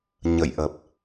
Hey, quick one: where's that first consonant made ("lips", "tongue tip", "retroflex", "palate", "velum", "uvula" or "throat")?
palate